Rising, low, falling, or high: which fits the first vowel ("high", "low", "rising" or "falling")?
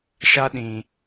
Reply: high